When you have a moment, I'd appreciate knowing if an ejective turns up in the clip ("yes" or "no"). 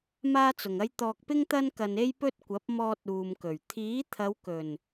no